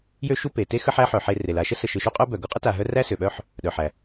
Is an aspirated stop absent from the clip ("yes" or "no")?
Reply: yes